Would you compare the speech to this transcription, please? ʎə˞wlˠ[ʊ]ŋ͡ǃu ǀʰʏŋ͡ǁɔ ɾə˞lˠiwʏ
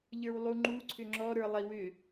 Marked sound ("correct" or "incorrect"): incorrect